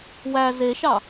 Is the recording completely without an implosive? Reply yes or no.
yes